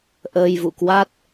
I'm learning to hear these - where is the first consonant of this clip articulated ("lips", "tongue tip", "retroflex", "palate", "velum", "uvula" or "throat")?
throat